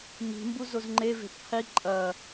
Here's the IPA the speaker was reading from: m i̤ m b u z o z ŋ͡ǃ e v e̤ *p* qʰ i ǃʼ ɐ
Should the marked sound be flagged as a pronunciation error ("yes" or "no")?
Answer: no